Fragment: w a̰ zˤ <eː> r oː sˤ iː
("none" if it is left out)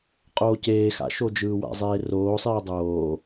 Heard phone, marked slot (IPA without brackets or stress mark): eː